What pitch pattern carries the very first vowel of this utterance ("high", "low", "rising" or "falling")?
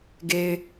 low